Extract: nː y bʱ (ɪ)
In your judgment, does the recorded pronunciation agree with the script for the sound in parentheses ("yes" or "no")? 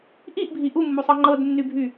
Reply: no